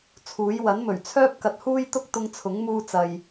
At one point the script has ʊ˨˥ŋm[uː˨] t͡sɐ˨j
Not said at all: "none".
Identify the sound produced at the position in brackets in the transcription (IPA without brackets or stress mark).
uː˧